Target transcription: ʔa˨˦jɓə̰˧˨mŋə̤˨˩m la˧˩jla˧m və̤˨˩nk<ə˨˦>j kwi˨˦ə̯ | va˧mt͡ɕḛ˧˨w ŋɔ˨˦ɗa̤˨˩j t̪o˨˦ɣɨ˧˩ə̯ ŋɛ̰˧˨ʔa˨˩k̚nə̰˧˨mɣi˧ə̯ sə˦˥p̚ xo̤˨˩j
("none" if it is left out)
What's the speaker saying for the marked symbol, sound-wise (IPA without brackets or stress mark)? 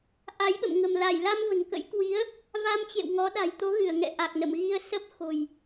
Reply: ə̰˧˥